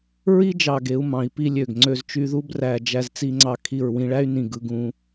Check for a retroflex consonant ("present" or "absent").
present